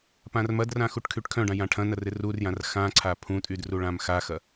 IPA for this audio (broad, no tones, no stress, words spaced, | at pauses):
pãrmɐdrã xuʈkʰyʈkʰœ̃ɖã jãʈʰɐ̃nɐ rɪrurjãr xãǀʰa pʰũtʼyd ruɭãmxaxɐ